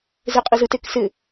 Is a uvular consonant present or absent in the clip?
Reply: present